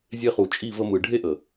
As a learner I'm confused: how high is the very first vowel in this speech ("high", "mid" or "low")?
mid